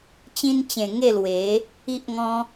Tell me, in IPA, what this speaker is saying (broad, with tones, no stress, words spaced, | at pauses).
t͡ɕĩ˧nt͡ɕẽ˨˩ ŋe˥˧lwe˨˦ | i˦ʔŋɔ̃˦